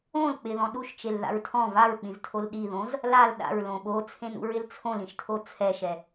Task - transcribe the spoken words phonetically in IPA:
õl k͡pɪðɔ̃ ɗuʃt͡ʃelða̰ɹ tʰɔ̃ vaɹk͡pĩztʰol ɗiðõz | lal ɗa̰ɹlõ ɓot͡sʰẽnṵɹɪl t͡sʰõlĩʃtʰo t͡sʰɛʃɛ

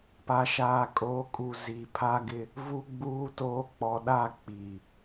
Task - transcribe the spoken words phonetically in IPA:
pa˨ʃaː˨ kʼoː˨˦kʼu˨ zi˨pʰa˦ɡɪ˦ | vu˦ɡ͡buː˦toː˦ k͡pɔ˨ɗa˦˨ k͡pi˨

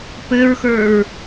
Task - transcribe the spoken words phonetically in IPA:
pɘɹxə˞ɹ

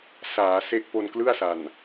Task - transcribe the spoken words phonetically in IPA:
saː˩˦se˦˥ʔ po˧nklɯ˥˩a̯sa˨˩n

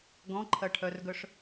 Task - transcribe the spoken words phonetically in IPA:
ɡɔ̃ǃʰɐʈʰœrɡœʂ

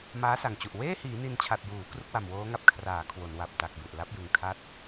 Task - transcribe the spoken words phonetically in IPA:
maː˦˥sa˨˩ŋt͡ɕu˨˩ʔ weː˥˩hiː˩˦ ni˧nt͡ɕʰa˨˩t̚juː˩˦ kru˦˥k̚wa˨˩mwoː˦˥ŋa˦˥p̚ kʰraː˩˦ kʰwo˩˦nwa˨˩p̚ta˨˩k̚bu˨˩ʔ la˦˥p̚jɯ˨˩ŋ tʰa˦˥t̚

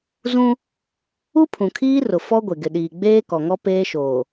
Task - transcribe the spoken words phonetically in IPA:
zũ˦ | u˦pʰũ˨kʰiː˦rʊ˨ fɔ˦ ɡʷe˨ɡɪ˨ɗiː˨ ɡ͡beː˦kɔ˨ŋɔ˦ peː˦ʃoː˨

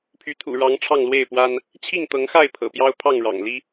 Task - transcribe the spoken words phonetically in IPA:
pʰy˨˦t̪ʰṵ˨˩ɻɑ˨˦ŋ ʈ͡ʂʰɑ˥˨ŋlwe˥˨ɪ̯pwa˦n | t͡ɕʰi˥˨ŋt̪ɤ˨˦ŋxa˥˨ɪ̯ pʰɤ̰˨˩pjɑ˦ʊ̯ pʰɑ˥˨ŋɻɑ̰˨˩ŋli˦

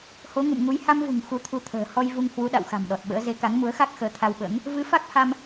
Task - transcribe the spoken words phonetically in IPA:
ho˨˦ŋṵ˧˨mŋu˨˦j ha˧mvṳ˨˩ŋ xu˧t̪ʰu˧t̪ʰə̤ː˨˩ hɔ˧jvu˧ŋ hwu˨˦ɗa̰˧˨wxa̤˨˩m ɗɔ˨˩t̚ɓə̰ː˧˥ ze˨˦ka˨˦ŋmu˨˦ə̯xa˦˥k̚ xəː˨˦t̪ʰa˧wɓə̰ː˧˥ŋ | vɨ˨˦fa˦˥k̚ha˧m

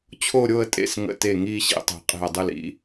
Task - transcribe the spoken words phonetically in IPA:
t͡ɕʰo˥˧ɾʲo˥˧ə̯tʼḛ˥˩s ŋə̰˧˩te˧˩ ŋiː˥˧ɕḭ˩˧˩tˤe̤˨˩˦ qʼe̤˧˩ə̯dˤɯ˥˩l ḭ˧˩

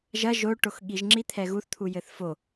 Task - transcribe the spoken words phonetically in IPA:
ʒɐ ʒoʈox ɠiʒŋ͡ǁi t̪ʰɛɣuθt̪ʰujɘθ fo

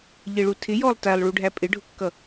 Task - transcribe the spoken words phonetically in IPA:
ʎɪɭu tʰɪjɔlˠ tælˠɭuɖʱæ pʼɪɖʱʊkːʌ

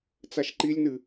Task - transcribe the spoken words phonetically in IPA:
t͡saʃǃilʲnɨ

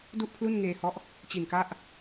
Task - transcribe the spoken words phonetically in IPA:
du˥˩ʔpʰlu˥˩nŋeː˧hɔ˦˥ʔ | t͡ɕi˨˩nka˦˥ʔ

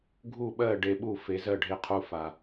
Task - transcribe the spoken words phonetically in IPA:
ɡʱu˥˩ɓɜ˥˩ ɖe˧ɓu˥˩fe˩˥zɜ˥˩ ɖʱe˧qʰu˧fa˩

